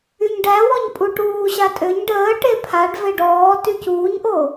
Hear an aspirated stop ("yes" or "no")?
yes